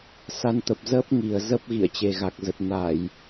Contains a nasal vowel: no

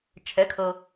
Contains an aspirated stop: yes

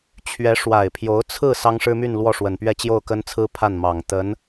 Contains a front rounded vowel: yes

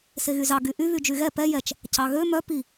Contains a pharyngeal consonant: no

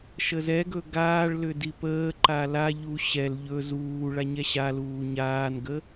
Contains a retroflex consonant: yes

